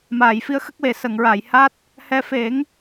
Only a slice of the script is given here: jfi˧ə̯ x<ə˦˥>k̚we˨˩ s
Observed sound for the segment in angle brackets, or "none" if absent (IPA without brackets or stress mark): ə˦˥